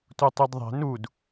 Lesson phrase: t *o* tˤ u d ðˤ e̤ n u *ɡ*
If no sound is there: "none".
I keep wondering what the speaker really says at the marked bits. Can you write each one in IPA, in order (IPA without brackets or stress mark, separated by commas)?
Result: u, d